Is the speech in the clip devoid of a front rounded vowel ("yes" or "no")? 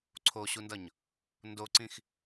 yes